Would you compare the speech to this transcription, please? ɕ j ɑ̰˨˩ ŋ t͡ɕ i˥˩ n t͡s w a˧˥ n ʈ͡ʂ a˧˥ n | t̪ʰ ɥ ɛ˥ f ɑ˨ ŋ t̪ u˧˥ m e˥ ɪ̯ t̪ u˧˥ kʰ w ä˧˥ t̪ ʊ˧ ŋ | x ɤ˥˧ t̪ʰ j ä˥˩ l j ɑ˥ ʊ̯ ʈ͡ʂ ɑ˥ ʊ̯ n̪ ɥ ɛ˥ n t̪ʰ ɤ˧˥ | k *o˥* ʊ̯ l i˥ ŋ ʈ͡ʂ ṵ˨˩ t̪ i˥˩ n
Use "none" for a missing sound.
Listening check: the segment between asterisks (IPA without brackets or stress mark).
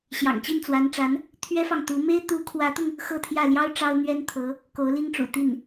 o˧˥